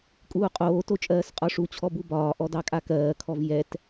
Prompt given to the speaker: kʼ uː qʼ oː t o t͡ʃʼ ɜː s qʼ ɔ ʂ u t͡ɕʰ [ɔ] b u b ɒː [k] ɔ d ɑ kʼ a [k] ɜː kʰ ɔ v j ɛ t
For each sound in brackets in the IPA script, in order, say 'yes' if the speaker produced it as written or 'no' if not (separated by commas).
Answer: yes, no, yes